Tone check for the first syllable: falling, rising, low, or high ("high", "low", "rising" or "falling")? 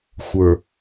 low